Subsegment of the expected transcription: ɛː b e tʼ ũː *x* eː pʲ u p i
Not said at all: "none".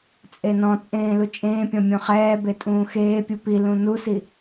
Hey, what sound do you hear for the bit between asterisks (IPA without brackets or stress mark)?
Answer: x